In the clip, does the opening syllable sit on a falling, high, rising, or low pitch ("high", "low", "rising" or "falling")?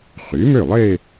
rising